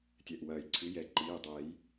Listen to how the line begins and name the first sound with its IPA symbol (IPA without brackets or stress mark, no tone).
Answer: tʲ